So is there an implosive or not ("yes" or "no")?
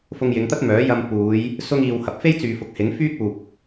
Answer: no